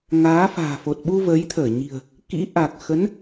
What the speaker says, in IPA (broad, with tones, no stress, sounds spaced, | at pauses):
ŋ aː˨˦ f a̤ː˨˩ f o˨˩ t̚ ɓ u˧ v ə˨˦ j t̪ʰ əː˧˩ ɲ i̤˨˩ ə̯ | k ḭ˧˥ ʔ a˨˩ k̚ x ə˨˦ n